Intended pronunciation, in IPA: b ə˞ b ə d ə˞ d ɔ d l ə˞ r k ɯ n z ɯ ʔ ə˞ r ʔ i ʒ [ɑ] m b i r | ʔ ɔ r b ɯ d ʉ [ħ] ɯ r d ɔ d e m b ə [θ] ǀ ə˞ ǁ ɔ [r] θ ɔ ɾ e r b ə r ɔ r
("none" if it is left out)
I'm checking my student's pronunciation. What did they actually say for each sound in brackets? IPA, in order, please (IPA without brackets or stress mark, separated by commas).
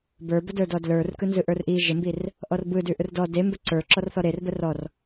ə, ʔ, none, r